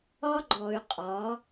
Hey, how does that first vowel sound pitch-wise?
high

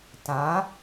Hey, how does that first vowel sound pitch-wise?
rising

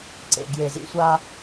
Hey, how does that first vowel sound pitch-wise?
low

